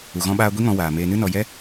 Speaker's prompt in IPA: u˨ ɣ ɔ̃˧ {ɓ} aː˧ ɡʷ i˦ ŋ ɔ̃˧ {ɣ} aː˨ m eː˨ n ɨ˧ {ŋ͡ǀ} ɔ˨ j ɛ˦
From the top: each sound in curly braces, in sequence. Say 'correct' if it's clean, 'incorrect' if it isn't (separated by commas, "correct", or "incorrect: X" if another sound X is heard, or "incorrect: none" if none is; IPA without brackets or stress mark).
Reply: correct, incorrect: w, incorrect: n